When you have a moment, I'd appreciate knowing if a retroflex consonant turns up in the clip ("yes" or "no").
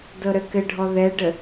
yes